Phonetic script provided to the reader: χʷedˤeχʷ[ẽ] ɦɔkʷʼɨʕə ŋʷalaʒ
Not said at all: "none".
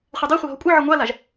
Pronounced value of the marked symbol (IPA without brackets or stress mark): e